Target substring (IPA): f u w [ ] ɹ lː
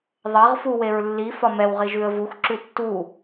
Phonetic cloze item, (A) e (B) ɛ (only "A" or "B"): A